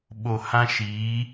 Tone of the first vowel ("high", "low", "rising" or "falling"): low